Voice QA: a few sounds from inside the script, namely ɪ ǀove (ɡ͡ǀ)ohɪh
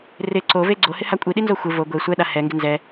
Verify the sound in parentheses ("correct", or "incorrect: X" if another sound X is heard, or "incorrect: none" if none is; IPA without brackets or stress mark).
correct